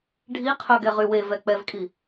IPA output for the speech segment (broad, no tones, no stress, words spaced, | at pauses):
ɖʱiqʰœɡɛʁy wevɛ k͡pɛvkʼi